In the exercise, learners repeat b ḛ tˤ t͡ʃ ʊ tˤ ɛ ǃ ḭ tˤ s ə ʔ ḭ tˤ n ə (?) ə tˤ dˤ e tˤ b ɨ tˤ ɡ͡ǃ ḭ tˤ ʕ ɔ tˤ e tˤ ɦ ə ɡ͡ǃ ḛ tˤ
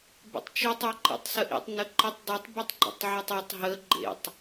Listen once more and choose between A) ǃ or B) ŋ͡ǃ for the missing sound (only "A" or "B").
A